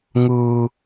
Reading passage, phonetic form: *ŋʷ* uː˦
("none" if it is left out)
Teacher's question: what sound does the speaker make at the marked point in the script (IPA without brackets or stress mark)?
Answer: ŋ